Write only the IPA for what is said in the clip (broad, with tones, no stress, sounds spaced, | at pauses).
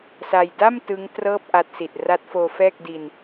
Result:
s a˧ j d a˥˩ m t ɯ˦˥ ŋ t r ɤː˥˩ p̚ ʔ a˦˥ t̚ s i˨˩ t̚ r a˦˥ t̚ f oː˧ f ɛː˥˩ k̚ d i˧ n